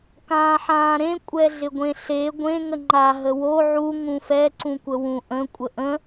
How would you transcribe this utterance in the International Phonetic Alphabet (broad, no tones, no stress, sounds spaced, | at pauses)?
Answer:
k ãː ħ ãː ɾ ẽ kʷʼ ɛ ɮ ɪ ɡʷ ẽ ɬ e ɡʷ ẽ ŋ ə ŋ͡ǃ a ɦ ə w o ʕ u ŋ ũ f ɛ ǀ ũ kʷ ə w ũ ʔ ə̃ kʷʼ ə ʔ ə̃